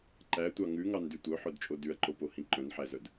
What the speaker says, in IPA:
ǃ æ tʷ ɑ ŋ ʉ ŋ ɑ n d y tʷ œ ħ œ d t͡ʃʼ o d ʉ ɐ̯ ǃ o p o h ĩ ǃ œ̃ n ħ æ z œ d

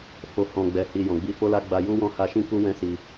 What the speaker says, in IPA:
f o˨ h ɔ̃˨ ɡ͡b ɛ˨ h i˨ j ɔ̃˨ ɡ͡b i˧ f o˦ l a˦ ɡ͡b a˧ j u˦ w ɔ̃˦˨ h a˧ ʃ ĩ˦ k u˦ w ɛ̃˦ s i˧

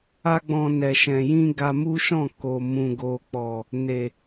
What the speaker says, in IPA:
a˦ ɡ͡b ɔ̃˧ n ɛ˨ ʃ ɛ̃˨ j ĩ˧ ɡ a˧ m u˦ ʃ ɔ̃˦˨ k o˨ m ũ˨ ɡ o˨ k͡p ɔ˨ | n e˨

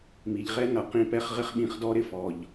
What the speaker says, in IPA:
m i˨ ʎ ʁ ɛ˦ n ʌ˨ q ĩ˧ p ɛ˧ χ ʁ ɪ˦ χ ɓ ĩ˧ χ d ɔ˦ ɾ ɪ˧ f ɔ˨ ʎ

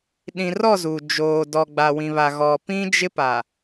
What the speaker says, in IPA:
ɗ ĩ˨ r ɔ˦˨ z u˨ d͡ʒ oː˨ d ɔ˨ ɡ͡b a˨ w ĩ˨ β a˨ ɣ ɔ˨ p ĩ˦ d͡ʒ ɪ˦ p a˨

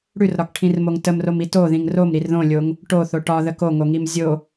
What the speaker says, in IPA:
ɽ ʉ r ɾ ɒ k ʈʰ ĩ r m o ŋ t ə m r o m i t o ð ĩ ŋ r o m ɾ i r ð õ lʲ o ŋ | ʈ o θ o ʈ ɒ ð ə k o ŋ o ŋ i m zʲ o

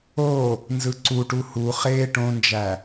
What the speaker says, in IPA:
o | n z ɯ ǀ u ʈ u h u χ eː ʈ õ n d͡ʒ æ

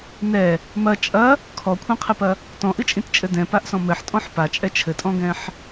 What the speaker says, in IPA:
n ɛ | m ɐ t͡ʃʼ ɐ | kʰ ɔ kʷʰ ɛ̃ qʰ ɘ p ɐ | t ɔ̃ ʔ ɨ t͡ʃʼ ĩ t t͡ʃʼ ɘ d ɛ̃ p a ʔ s ɔ̃ m ɘ ħ tʼ ɔ̃ ħ p a t͡ʃʼ ɛ t͡ʃʰ ɘ tʼ ɔ̃ ɡ ɛ̃ ħ

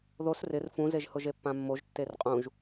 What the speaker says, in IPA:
ð o s r ɪ r f ũ z e ʒ h ʊ ʒ e pː ã mː o ʒ tː e r qʼ ũ ʒ

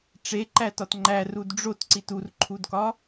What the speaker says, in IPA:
ʈ͡ʂ e ǃ æ t ɒ t ŋ͡ǃ æ r u d ɖ͡ʐ o t ǀ i t u r ǃʰ u d k ɒ

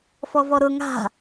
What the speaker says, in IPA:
f ɔ v ɔ ɾ ʊ ŋ a̤

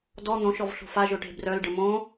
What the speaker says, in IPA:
d ɔ n̪ õ ʃ ɔ v ɬ o̤ f a ʒ ʊ ʈ e̤ b r œ l ɖ ə m õ

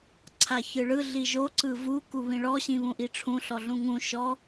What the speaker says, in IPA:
ǀʰ a ç ɯ ɭ ɯ ɮ i ʒ o ǀ ɯ v u k u β ĩ ɭ ɔ ɕ ĩ β ũ ʔ i ʈ͡ʂʰ ũ ɬ ɔ ɮ ũ ŋ ũ ʃ ɔ

